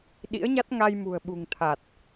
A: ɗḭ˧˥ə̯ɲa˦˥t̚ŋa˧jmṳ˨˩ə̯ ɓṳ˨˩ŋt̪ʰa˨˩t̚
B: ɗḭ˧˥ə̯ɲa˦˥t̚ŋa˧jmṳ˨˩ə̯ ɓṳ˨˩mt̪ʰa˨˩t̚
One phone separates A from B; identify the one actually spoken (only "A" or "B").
A